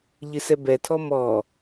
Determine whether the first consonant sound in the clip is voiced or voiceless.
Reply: voiced